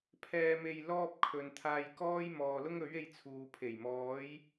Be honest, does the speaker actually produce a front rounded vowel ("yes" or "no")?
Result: no